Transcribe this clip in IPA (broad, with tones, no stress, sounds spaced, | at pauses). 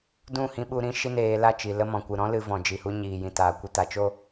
d ũ˦˨ h ĩ˧ ɓ u˧ ɾ ĩ˧ ʃ i˦ n eː˧ l a˦˨ t͡ʃ i˨ l ə˧ m ɔ̃˨ kʷ ɨ˨ ɾ ɔ̃˦ l ɨ˧ v ɔ̃˨ d͡ʒ i˨ h u˧ ɲ iː˨ j ĩ˨ t aː˨ kʷ ɨ˧ t a˨ t͡ʃ o˦